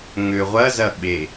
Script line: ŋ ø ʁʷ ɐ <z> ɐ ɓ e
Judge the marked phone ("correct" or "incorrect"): correct